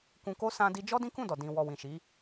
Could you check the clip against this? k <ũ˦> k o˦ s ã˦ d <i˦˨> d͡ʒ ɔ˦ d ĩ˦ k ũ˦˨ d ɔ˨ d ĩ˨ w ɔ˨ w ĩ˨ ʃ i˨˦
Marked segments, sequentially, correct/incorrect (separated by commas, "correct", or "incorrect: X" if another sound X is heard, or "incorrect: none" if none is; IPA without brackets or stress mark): incorrect: ũ˧, incorrect: i˧